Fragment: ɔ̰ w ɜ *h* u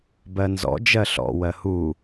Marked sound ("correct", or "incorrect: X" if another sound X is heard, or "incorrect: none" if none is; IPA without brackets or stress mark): correct